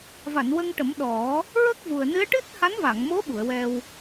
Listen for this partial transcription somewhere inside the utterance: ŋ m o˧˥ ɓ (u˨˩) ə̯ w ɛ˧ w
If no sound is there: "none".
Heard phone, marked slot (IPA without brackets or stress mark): u˨˩˨